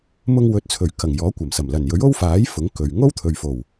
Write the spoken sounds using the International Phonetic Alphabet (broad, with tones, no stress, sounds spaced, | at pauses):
m ʊ˧ ŋ w ɵ˨˥ t̚ t͡sʰ ɵ˨˩ ɥ k ɐ˨˩ ŋ j ɔː˨˥ kʷ ɐ˨˩ m s ɐ˨˩ m l ɐ˨˩ n j ɵ˨˥ ɥ o˥ w f aː˨˥ j f ʊ˨˥ ŋ k ɵ˨ ɥ ŋ o˥ w t̪ʰ ɵ˨ ɥ f o˨˩ w